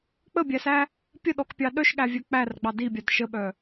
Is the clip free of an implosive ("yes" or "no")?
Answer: no